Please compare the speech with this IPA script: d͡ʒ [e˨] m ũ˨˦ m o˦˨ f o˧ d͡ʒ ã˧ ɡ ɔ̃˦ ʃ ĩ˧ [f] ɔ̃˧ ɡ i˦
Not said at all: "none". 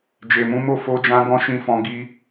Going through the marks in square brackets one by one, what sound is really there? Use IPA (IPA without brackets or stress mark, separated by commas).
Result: e˨, f